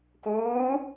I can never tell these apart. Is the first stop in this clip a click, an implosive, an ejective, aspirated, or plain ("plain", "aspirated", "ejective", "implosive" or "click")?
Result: plain